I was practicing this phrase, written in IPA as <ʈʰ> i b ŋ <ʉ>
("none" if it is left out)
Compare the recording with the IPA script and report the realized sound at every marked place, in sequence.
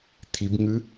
t̪ʰ, ʉ

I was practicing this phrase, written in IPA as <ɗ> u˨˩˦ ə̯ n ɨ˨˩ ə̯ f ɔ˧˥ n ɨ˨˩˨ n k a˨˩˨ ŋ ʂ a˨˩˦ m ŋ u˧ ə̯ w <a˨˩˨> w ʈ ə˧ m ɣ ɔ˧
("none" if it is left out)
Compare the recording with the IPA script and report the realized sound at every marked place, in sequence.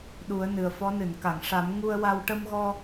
ɗ, a˧

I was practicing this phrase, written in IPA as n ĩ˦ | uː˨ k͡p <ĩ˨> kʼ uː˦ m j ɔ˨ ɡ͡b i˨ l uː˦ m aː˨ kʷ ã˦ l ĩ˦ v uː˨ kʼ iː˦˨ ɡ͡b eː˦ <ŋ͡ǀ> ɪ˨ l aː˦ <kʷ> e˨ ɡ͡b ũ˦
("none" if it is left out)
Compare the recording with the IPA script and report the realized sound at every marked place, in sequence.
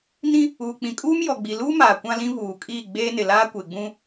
ĩ˨, n, kʷ

